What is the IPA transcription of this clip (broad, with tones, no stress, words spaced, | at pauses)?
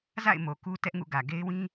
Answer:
za̰˦˨ɪ̯ mo˨ku˦tɛ˦ʔŋṵ˦˨ ɡä˨ɡe˦ɪ̯ wĩ˦